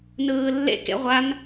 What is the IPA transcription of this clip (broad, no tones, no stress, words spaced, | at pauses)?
nɯːlːḛk ḛʁʷan